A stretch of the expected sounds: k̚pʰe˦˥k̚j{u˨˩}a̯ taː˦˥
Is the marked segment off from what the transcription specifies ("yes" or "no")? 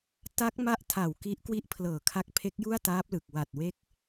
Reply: yes